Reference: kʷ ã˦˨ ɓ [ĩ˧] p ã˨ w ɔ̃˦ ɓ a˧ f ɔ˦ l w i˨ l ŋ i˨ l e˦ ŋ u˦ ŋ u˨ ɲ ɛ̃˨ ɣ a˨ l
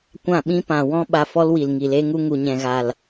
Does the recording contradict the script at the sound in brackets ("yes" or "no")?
yes